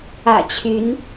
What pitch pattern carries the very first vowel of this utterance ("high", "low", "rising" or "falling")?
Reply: low